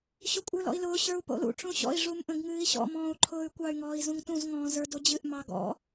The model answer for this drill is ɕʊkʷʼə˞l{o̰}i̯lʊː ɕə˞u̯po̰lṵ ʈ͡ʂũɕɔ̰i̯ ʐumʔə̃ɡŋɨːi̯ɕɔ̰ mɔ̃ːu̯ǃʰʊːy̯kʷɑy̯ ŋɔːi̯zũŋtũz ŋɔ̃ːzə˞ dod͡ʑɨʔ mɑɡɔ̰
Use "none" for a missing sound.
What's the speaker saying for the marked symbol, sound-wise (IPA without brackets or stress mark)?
ɔ̰